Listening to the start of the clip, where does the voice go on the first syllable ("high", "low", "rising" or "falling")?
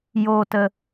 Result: high